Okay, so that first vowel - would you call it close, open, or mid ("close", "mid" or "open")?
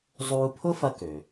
close